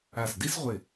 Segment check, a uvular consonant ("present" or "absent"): present